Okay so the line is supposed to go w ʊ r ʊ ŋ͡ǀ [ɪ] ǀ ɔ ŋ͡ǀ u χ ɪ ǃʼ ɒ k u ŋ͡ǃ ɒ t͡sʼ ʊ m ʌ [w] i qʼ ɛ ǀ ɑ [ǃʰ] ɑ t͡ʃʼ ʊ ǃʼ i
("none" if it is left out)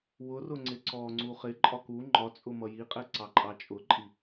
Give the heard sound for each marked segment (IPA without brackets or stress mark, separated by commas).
ɪ, j, ǃʼ